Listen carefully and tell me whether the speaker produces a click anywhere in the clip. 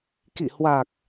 no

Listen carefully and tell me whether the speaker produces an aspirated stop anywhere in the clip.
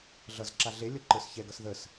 no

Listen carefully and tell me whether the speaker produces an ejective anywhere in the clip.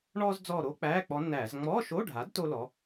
no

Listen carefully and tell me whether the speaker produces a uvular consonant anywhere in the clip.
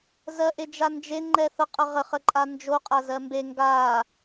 yes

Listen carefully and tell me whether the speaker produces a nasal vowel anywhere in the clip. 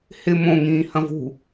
yes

